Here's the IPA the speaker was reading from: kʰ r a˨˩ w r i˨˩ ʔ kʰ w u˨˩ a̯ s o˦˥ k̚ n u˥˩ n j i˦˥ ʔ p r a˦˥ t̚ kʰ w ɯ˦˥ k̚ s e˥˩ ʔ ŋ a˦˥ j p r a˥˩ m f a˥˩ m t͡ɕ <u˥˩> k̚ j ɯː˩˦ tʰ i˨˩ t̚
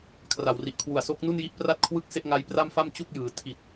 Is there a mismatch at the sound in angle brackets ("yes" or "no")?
no